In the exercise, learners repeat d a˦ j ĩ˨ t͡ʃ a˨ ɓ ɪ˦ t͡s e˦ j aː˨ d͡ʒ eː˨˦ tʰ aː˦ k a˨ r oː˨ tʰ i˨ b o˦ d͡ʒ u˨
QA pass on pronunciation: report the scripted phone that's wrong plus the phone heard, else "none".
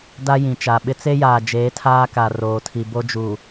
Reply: none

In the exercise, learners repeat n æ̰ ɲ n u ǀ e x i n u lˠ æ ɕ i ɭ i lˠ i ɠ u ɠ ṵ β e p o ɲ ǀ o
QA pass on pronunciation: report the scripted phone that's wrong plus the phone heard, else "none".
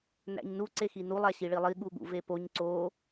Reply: β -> v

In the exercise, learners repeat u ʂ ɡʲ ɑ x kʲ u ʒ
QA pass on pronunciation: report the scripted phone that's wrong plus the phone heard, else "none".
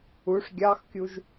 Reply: none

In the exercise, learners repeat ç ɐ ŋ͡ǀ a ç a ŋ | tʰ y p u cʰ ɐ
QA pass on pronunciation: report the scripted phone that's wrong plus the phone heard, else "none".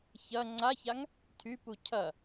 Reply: none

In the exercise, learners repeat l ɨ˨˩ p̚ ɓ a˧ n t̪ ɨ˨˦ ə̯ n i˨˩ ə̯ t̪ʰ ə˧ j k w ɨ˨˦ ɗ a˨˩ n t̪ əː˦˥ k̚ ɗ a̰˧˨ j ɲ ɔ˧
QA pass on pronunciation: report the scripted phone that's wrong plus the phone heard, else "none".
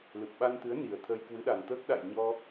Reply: none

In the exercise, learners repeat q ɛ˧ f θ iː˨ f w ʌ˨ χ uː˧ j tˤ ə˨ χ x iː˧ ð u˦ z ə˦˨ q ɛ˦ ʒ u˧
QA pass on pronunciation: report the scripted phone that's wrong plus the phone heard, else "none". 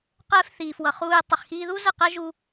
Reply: none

